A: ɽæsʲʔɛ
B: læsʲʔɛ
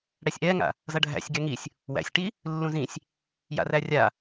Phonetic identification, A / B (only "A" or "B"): A